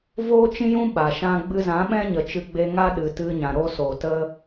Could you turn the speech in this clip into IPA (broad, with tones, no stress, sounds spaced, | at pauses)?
v oː˦ t͡ʃ ĩ˦ j ũ˦ ɓ a˨ ʃ ã˦ ɡ͡b ɨ˧ z ã˨˦ ɓ ɛ̃˦ ɲ ə˨ t͡ʃ ɨ˧ ɡ͡b e˧ ŋ a˦ ɗ ɨ˨ t ɨ˧ ɲ ã˨ ɾ o˦ s o˨ t ə˦